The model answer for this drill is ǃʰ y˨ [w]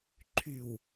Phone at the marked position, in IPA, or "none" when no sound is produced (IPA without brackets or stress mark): w